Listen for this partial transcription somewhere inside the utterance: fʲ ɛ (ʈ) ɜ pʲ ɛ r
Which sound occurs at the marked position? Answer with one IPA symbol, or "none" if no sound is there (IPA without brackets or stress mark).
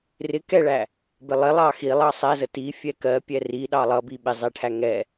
k